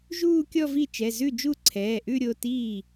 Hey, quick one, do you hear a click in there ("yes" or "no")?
yes